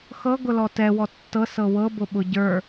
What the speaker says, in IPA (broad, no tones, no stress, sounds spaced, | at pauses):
x ɤ ɡ ʊ l ɔ t ɛ w ɔ tː ɤ s ɤ w ɤ b ʊ ɓ ʊ ɟ ə˞